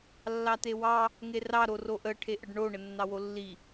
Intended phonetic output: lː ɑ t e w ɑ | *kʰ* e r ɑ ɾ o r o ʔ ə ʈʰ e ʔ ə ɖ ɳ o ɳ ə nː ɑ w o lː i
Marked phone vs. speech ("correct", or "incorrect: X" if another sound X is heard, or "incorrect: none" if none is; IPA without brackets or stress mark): incorrect: ŋ